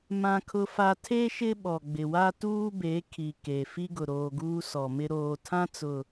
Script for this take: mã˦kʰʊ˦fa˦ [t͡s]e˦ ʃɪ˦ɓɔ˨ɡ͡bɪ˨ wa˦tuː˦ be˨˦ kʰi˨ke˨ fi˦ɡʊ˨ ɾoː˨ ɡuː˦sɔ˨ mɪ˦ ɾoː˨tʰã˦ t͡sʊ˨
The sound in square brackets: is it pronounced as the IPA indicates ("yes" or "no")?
no